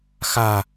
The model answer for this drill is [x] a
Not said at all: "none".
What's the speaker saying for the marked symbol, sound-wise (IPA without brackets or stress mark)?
x